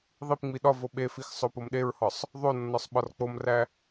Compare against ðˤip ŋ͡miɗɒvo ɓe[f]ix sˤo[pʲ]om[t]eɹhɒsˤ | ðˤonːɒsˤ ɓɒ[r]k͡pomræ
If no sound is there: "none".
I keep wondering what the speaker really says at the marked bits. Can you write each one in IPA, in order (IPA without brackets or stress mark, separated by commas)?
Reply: f, p, ɗ, r